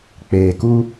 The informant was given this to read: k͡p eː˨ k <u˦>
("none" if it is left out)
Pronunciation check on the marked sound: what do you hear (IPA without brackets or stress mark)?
u˦